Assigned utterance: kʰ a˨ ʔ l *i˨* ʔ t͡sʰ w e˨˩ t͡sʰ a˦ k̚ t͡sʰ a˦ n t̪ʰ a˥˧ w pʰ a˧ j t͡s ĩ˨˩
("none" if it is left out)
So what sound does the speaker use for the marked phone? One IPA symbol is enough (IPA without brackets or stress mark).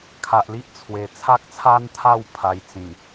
i˦